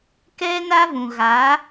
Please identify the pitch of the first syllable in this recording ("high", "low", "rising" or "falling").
high